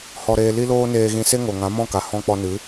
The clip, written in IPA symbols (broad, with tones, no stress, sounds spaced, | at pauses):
h ɔ˧ ɾ eː˧ l i˦ l oː˦ n eː˧ ɣ ĩ˧ s e˦ ŋ o˨ ŋ ã˨˦ m ɔ̃˦˨ k a˨ h ɔ̃˧ k͡p ɔ˧ n ɨ˨˦